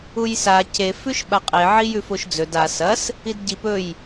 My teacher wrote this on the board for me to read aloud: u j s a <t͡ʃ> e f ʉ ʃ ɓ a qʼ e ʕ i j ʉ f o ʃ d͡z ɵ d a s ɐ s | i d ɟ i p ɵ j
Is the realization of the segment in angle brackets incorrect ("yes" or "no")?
yes